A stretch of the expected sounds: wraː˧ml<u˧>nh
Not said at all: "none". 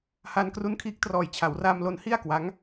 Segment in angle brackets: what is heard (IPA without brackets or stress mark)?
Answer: o˧